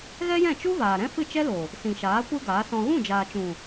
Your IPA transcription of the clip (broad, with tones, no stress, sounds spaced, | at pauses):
ɣ ɛ˦ j ɛ̃˦˨ t͡ʃ u˦ v aː˨ ɾ ɛ̃˦ f ɨ˦˨ t͡ʃ ɛ˦ l o˨ | s ĩ˨ ʃ aː˨˦ kʷ ɨ˦ ɡ aː˨˦ s ɔ̃˧ ɣ ũ˦˨ d͡ʒ aː˨ t͡ʃ ũ˨